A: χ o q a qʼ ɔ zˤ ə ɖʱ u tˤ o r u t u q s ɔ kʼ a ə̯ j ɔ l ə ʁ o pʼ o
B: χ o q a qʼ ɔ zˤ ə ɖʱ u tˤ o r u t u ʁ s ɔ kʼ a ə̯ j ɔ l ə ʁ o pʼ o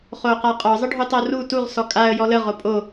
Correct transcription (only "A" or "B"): B